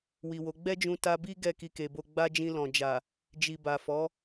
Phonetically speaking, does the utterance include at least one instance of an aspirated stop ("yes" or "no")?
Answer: no